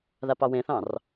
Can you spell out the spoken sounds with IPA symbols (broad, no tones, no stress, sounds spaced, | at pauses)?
ð a p ɑ w ẽ θ ɑ̃ r